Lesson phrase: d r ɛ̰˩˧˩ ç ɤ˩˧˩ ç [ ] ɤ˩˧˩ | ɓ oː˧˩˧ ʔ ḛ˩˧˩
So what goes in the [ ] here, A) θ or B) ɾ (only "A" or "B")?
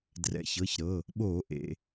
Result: B